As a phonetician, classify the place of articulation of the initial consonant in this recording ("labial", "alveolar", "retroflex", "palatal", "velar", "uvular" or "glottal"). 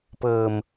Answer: labial